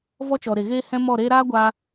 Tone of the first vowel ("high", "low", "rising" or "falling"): high